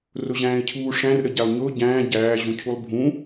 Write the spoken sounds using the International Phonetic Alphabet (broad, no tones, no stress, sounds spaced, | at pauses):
r ʊ ʑ æ̃ː ɪ̯ cʰ uː ʂ æ̃ r ɾ ə ɟ æ lˠ ɲ ʊː ɟ æ̃ː ɟ æː ʑ ũ cʰ u lˠ bʱ ũ